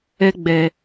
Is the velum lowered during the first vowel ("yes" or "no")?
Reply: no